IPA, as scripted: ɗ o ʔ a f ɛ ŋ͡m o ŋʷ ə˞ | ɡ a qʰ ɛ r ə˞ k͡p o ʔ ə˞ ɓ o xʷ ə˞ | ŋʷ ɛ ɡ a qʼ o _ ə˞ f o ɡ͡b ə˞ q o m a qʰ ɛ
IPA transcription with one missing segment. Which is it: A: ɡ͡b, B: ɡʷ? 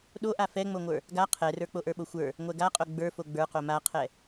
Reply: A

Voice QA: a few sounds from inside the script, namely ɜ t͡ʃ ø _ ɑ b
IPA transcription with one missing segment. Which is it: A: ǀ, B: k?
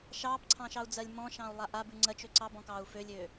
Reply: A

